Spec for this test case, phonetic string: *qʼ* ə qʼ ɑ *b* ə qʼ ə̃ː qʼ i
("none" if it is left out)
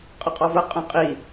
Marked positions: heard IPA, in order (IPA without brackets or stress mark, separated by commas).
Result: qʼ, v